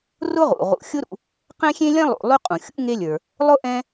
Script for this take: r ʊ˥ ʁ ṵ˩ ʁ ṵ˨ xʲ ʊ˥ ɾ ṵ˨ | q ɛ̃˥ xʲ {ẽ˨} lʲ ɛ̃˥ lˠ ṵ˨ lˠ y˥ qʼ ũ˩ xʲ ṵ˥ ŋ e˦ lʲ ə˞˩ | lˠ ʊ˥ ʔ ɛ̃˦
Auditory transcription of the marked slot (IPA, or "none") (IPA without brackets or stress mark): ẽ˥